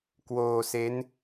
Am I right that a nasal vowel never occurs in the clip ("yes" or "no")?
yes